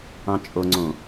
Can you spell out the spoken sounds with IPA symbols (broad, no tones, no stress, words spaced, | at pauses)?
ɑ̃t͡ʃʼoŋ͡ǀõ